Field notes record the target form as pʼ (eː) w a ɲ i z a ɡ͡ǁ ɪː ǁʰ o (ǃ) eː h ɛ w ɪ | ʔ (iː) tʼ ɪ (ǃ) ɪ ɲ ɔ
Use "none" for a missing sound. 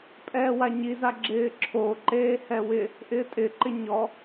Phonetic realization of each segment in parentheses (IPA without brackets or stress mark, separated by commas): ɛː, ǃ, ɪː, ǃ